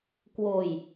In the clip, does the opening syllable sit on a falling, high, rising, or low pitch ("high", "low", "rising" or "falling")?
low